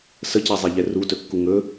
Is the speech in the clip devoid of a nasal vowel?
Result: yes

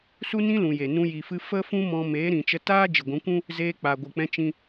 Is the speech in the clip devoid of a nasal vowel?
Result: no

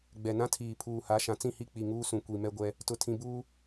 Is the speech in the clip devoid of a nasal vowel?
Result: no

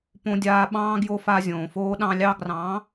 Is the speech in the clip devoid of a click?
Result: yes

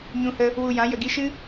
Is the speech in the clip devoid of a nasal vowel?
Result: no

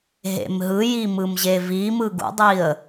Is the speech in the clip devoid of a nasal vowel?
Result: yes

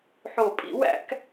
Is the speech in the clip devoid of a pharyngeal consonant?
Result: no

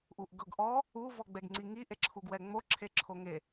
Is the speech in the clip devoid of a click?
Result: no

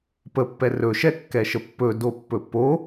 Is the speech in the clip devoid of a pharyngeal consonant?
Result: yes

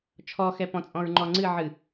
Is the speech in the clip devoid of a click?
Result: no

